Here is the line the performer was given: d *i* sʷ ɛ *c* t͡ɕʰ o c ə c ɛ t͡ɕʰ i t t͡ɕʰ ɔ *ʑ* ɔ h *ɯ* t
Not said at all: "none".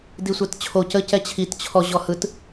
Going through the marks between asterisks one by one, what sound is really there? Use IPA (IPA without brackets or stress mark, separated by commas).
i, t, ʑ, ɯ